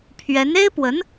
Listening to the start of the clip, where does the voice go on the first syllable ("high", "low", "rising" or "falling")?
rising